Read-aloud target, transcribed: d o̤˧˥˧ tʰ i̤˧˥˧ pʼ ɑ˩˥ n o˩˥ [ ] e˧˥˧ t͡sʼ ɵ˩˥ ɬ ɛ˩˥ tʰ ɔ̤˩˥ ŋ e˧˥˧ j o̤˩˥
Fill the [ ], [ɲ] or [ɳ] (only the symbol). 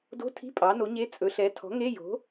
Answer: ɲ